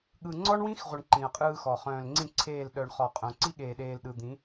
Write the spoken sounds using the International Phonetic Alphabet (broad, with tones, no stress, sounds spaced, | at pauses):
ɠ ɯ˨ ŋ͡ǀ ɔ˦ ɳ w ĩ˦ x ʁʷ ɘ˨ ɳ ǃ ĩ˨ ɐ̯ qʼ ɯː˦ x ɔ˨ χ œ̃ː˨ l ŋ͡ǀ ĩ˦˨ ǀʰ eː˦˨ l ɗ œ˨ ɳ χ ɔ˨ qʼ œ̃˨ ǀ i˦ ɠ eː˨ ɗ eː˨ l ɗ ɯ˨ d̪ ĩ˨˦